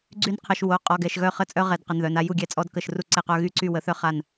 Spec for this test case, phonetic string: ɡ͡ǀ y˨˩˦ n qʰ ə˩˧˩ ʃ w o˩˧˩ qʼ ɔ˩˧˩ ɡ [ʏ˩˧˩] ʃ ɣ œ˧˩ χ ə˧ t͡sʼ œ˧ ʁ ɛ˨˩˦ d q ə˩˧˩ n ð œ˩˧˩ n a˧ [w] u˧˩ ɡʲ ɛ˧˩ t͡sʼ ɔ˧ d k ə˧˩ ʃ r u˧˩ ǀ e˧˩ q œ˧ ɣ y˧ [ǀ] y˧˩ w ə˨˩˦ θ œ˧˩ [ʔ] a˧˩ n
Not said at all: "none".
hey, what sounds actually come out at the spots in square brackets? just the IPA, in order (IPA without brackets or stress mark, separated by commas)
ɛ˩˧˩, j, ǀ, χ